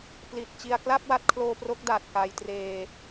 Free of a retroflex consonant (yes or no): yes